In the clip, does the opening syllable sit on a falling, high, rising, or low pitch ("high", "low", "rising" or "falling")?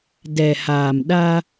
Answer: low